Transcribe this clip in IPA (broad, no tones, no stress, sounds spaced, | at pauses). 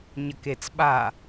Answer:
ɲ ɐ k e t͡s ɓ a